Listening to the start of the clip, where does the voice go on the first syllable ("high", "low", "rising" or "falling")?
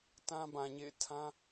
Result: high